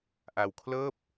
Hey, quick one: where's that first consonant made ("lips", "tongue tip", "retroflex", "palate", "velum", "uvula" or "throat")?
throat